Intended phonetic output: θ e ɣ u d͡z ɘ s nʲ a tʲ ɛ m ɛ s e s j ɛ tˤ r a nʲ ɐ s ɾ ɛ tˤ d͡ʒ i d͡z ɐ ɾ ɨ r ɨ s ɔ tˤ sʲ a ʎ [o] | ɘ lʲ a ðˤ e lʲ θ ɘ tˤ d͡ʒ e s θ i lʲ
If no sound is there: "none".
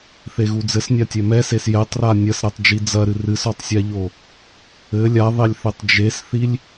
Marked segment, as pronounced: o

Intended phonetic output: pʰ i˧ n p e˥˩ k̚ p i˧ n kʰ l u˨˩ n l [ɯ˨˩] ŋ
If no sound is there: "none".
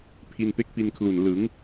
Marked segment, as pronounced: ɯ˩˦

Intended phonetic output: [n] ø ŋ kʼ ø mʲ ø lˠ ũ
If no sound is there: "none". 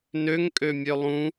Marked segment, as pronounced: n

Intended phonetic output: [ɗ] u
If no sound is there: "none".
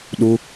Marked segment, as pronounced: ɗ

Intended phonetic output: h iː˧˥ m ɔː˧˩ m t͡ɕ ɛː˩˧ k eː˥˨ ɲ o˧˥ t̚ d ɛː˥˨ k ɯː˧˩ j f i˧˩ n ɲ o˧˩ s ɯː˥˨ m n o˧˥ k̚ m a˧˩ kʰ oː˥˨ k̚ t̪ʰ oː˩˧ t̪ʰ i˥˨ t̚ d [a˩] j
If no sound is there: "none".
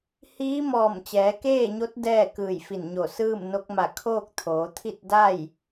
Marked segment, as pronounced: a˥˨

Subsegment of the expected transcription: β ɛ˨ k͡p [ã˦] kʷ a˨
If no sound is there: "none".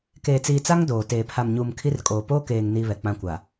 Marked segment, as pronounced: ã˦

